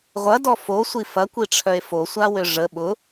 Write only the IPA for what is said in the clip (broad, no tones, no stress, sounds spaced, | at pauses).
ʁʷ ɐ d ɔ f o sʷ i f ɐ kʷ i ʈ͡ʂʰ œ e̯ f o sʷ a w ø ʐ ə ɓ ʊ